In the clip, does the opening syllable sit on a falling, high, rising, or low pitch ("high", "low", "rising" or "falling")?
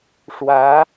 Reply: rising